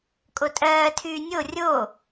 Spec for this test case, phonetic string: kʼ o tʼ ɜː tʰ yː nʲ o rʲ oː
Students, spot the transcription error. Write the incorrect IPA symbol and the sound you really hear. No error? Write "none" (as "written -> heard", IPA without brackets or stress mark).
none